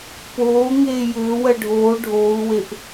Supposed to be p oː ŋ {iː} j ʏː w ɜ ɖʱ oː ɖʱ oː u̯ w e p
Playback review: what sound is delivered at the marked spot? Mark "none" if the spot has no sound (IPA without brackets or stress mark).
eː